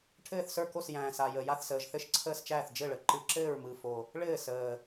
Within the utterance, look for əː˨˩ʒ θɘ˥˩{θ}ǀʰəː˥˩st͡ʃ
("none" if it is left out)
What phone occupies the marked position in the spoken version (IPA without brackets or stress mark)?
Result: ʃ